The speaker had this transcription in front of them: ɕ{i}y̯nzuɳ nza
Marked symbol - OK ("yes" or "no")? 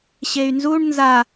no